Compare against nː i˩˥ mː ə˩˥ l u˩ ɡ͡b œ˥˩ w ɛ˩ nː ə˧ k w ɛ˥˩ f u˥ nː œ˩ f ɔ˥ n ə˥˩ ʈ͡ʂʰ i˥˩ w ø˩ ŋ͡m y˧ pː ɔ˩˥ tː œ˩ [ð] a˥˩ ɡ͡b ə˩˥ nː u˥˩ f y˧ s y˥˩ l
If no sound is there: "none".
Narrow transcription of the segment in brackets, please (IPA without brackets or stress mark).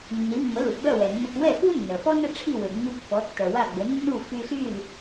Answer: w